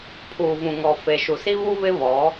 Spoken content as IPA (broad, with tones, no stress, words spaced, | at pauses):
pʰuː˨vũ˨ŋɔ˨ fe˨ ʃu˨si˦βu˦ βɪ˦βɔ˨˦